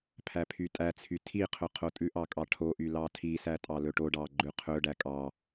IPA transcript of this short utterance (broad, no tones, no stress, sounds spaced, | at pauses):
pʰ æ pʰ y tʼ æ t͡sʰ y tʰ i qʰ ɵ qʰ o tʼ ʉ ʔ ɑ kʼ ɑ ʈʰ o ʔ y l ɑ tʰ i s æ tʼ ɑ l ɵ ʈ o ɖ ɑ ɡ͡ǃ ʉ qʰ ɵ ɖ æ kʼ ɑ